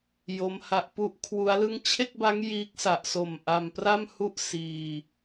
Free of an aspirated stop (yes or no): no